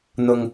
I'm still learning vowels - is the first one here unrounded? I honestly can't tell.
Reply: no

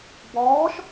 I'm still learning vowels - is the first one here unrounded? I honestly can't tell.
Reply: no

